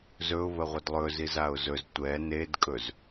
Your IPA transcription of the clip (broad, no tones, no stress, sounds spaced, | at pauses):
z ɵ ʊ̯ β ə ʁʷ ə d lˠ ɵ z i z a ʊ̯ z ɵ z tʷ ɛ n e d kʼ ɵ z